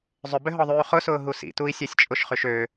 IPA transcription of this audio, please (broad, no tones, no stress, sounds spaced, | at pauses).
zˤ ʏ b ʏ ɦ ɔ ðˤ yː χ ʊ s ʊː ɦ u s ḭ t u i̯ sʲ ɛ sʲ t͡ʃʼ ʊ ʃ χ y ʃ ø